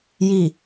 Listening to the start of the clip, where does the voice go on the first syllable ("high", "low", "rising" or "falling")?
low